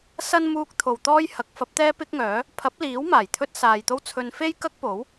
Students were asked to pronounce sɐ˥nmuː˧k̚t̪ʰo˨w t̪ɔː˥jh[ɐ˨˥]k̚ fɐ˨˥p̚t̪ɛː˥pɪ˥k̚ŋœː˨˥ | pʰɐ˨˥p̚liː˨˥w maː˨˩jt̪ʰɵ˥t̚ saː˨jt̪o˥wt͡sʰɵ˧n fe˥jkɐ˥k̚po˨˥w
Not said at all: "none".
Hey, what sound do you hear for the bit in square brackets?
ɐ˨˥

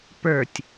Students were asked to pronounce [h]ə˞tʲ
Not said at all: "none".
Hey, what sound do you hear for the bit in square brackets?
p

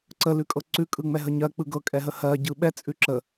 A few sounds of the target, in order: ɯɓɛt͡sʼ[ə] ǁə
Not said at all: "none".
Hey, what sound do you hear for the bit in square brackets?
ʉ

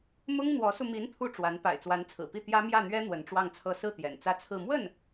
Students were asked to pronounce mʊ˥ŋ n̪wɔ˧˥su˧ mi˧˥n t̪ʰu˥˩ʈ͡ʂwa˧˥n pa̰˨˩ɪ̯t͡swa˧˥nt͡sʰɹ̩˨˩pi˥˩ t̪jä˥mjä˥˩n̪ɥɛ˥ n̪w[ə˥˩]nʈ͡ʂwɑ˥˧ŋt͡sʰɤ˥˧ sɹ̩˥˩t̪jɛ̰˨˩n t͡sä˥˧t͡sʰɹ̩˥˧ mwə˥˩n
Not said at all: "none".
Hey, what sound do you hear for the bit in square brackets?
ə˧˥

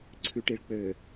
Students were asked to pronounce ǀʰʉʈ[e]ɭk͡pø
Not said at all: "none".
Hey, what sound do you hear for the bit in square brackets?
i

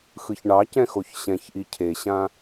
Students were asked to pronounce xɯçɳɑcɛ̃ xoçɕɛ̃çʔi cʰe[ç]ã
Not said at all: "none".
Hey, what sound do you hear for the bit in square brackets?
ɕ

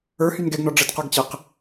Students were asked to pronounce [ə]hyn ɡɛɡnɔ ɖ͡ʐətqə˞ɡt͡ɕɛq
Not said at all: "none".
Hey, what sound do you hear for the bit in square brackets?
ə˞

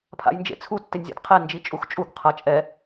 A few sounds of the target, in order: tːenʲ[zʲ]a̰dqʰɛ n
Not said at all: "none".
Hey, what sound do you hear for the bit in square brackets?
zʲ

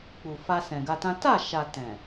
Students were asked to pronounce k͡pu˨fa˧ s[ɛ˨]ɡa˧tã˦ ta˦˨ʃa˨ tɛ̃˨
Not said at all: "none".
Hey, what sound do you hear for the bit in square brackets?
ɛ̃˨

